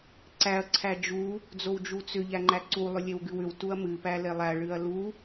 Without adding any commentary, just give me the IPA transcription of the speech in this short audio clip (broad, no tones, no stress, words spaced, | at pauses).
ǀæɐ̯ ǀʰæd͡ʒu | d͡zowd͡ʒut͡sʏ ʎæŋ͡ǃæǀu lˠʏlʲewɡɨwʏw tuɐ̯mɨ pælelˠæ ɭɨɐ̯lu